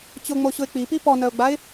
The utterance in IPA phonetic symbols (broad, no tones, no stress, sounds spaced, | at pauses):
t͡ɕ ʊ ŋ͡m o ɕ ʊ ɪ̯ k͡p i p i p ɔ n œ ʊ̯ ɡ͡b a ɪ̯